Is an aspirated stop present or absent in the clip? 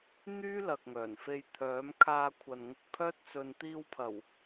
present